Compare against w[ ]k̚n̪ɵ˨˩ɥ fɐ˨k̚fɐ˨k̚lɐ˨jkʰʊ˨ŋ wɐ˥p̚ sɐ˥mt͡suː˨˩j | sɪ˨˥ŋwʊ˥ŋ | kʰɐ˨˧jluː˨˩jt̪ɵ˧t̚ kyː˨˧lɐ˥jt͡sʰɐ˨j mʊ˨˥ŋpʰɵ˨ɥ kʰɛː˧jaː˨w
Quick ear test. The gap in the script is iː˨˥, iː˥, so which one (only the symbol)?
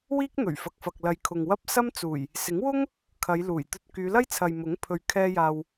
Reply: iː˥